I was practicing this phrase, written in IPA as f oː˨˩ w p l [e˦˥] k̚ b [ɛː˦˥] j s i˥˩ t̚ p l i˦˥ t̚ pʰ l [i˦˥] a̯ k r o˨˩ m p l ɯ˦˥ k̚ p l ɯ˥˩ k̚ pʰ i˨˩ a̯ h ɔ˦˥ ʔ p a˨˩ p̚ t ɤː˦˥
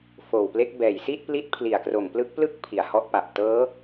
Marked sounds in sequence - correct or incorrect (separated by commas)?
correct, incorrect, incorrect